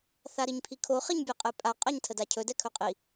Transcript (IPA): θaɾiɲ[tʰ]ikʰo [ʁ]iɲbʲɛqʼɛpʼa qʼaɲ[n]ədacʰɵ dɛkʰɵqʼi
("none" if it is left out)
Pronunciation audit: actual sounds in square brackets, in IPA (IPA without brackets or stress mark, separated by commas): pʰ, χ, tʰ